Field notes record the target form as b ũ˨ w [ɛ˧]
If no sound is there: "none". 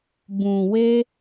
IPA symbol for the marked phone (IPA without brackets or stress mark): e˧